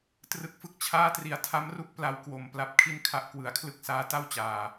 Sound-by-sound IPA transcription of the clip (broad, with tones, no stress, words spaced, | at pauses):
trɯ˦˥k̚fɯ˥˩k̚t͡ɕʰaː˥˩tri˨˩a̯ tʰa˦˥mru˦˥k̚ pla˧wkwo˨˩m pla˦˥p̚ kʰi˥˩nkʰa˦˥ʔ kwɯ˩˦a̯kʰlɯ˥˩k̚saː˦˥ ta˥˩wt͡ɕaː˨˩